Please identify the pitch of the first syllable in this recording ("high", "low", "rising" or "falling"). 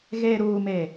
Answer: low